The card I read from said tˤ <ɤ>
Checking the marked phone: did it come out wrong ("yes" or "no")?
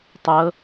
no